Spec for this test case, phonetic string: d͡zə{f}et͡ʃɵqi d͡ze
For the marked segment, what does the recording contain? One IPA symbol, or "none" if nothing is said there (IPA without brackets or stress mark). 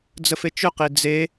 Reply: f